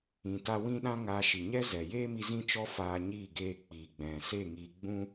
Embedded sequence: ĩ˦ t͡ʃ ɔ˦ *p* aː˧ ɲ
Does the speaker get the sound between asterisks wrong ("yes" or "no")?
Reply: yes